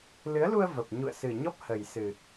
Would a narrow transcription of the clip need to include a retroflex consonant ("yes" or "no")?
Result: no